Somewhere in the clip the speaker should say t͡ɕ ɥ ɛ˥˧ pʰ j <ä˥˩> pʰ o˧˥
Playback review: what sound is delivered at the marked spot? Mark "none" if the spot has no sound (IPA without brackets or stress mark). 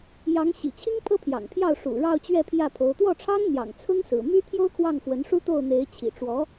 ä˥˩